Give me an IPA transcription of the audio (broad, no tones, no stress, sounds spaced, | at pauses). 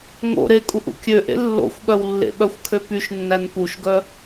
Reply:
ŋ o̰ ɾ e kʼ u ʔ ṵ kʲ ø ʔ ḛ lː o̰ xʷ ɠ œ w lː ḛ ɓ œ xʷ kʰ ø p y ʃ nː æ n p u ʃ ɡ œ